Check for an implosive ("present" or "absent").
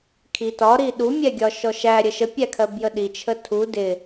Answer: present